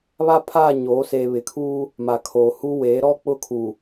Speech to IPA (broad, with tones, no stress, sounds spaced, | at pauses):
β a˦ pʰ aː˦˨ ɲ oː˨˦ s eː˨ β ɪ˨ kʰ uː˦ | m a˨ kʰ oː˨ h u˦ w eː˨˦ ɾ ɔ˦ k͡p ʊ˦˨ kʰ u˨